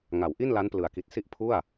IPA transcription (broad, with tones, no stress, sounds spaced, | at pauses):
ŋ a˩˦ w ʔ i˥˩ n l a˦˥ n p l ɯ˩˦ a̯ k i˨˩ t̚ s i˥˩ ʔ pʰ u˥˩ a̯